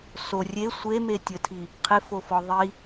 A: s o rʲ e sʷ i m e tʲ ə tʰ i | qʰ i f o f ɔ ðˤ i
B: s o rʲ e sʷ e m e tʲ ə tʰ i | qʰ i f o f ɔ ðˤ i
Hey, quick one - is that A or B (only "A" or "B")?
B